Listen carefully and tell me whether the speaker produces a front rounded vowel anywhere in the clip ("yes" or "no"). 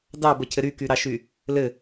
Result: yes